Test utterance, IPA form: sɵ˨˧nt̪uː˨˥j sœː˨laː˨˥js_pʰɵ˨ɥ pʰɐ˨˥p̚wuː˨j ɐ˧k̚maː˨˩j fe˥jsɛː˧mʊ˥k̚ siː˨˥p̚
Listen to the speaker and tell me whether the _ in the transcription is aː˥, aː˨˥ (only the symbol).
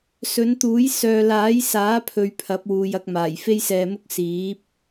aː˨˥